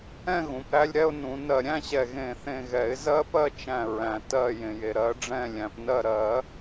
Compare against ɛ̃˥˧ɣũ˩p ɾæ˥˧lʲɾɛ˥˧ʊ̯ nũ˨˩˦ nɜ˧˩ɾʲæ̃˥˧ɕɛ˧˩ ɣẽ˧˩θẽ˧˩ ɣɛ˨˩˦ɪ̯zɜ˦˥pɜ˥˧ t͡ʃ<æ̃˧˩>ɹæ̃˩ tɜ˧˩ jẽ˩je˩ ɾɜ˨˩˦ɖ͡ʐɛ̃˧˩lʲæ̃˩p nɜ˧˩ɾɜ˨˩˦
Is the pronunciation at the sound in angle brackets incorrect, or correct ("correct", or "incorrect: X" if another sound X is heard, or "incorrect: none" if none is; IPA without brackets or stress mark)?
correct